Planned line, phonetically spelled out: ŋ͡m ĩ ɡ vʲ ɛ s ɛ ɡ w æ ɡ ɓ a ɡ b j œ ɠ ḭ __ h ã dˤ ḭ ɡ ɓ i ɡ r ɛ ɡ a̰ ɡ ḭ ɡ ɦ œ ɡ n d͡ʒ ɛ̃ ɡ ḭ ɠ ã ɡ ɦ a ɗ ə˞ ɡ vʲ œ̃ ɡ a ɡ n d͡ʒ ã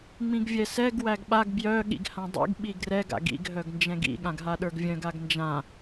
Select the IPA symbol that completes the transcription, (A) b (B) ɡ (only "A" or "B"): B